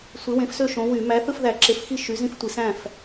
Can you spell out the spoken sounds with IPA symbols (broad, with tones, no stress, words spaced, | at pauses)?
sʷe˨˥wẽ˨˥fsø˥˨ ʃõ˨˥wy˧˩˧ mæ˨˥θɯ˥˨fðæ˧˩˧ ǁe˨˥fxi˥˨ ʃy˨˥zĩ˥˨ftʷi˧˩˧sæ̃˥˨f